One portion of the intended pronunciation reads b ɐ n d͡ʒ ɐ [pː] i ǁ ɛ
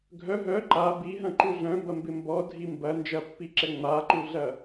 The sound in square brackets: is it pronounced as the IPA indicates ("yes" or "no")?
yes